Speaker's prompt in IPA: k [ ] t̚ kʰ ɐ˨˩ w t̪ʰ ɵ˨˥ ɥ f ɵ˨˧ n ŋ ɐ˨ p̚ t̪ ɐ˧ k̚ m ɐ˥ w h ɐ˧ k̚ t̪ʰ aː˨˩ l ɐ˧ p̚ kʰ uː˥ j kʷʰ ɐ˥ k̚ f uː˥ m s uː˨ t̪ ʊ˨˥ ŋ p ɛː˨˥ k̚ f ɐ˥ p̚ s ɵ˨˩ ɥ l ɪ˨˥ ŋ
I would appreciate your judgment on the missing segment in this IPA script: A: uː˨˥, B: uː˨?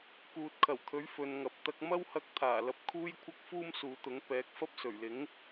B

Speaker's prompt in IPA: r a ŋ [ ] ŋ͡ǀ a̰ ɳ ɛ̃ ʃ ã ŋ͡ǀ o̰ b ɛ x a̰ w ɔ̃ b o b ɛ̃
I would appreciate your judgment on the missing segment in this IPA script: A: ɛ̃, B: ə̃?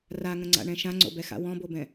B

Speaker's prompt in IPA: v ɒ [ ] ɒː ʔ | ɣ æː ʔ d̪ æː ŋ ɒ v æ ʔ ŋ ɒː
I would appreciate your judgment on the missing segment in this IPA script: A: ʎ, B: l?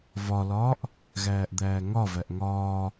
B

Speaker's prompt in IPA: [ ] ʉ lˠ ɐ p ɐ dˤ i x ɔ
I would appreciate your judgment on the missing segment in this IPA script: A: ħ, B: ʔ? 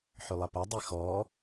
A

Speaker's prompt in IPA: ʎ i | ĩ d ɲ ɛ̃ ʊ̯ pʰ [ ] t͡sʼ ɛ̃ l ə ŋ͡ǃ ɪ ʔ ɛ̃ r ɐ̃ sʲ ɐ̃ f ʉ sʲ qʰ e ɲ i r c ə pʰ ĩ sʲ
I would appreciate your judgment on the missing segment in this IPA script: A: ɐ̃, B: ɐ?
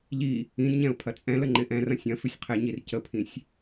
B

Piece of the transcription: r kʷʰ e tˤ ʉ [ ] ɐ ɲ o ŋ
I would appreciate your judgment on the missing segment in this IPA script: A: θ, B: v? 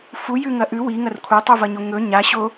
B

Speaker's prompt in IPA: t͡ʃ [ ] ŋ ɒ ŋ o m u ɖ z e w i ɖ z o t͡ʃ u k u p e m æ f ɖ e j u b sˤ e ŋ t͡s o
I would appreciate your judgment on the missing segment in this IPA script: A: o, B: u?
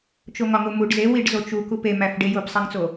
A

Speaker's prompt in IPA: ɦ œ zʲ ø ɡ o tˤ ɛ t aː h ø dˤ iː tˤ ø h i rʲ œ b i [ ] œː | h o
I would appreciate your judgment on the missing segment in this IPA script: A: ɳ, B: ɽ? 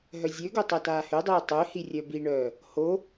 A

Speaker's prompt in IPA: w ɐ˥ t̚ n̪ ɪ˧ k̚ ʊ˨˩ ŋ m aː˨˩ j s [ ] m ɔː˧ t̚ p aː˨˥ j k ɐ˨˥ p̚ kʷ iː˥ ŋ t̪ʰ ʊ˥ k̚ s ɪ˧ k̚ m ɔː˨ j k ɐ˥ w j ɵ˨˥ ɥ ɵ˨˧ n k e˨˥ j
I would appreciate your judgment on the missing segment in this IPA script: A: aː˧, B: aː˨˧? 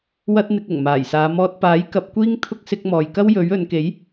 B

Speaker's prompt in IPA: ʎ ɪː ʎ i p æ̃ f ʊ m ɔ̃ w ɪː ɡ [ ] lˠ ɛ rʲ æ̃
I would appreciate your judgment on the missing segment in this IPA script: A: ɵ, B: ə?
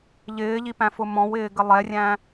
B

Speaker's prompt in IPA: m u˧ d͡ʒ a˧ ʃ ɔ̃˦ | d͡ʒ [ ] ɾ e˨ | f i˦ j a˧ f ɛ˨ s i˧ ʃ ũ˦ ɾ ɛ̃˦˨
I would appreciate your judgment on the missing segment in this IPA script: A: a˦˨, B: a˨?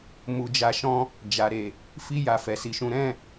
B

